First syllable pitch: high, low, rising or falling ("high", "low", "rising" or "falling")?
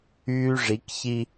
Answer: high